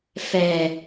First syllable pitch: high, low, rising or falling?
low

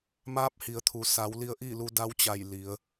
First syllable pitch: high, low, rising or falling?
rising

